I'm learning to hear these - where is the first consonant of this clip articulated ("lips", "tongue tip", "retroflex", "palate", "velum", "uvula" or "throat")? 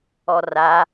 tongue tip